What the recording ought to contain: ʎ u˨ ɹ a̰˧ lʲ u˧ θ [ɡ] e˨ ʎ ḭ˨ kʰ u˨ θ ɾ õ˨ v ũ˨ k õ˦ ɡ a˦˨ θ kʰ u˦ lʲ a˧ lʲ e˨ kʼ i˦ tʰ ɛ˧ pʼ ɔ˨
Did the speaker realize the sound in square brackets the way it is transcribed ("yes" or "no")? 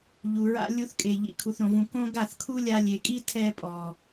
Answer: no